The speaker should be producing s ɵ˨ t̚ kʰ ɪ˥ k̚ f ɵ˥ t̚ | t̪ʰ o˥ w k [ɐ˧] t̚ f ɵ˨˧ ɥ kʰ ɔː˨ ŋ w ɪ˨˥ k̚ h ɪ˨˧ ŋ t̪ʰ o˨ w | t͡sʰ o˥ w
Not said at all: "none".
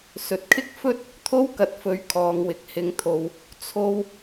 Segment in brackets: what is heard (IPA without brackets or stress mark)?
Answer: ɐ˨